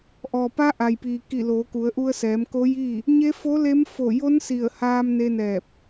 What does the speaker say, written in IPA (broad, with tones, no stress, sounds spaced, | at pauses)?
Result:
ʔ ɔː˩ p a˧˥ ʔ a˩ j p iː˩ k i˧˩ l oː˩˧ k u˩˧ ə̯ ʔ u˧ ə̯ s ɛː˩˧ m k o˧˥ j iː˥˨ | ɲ e˧˥ f o˧˥ l e˧˥ m f o˧˩ j o˧˥ n s i˧˩ ə̯ h aː˧ m n e˧ n ɛː˧˩ p̚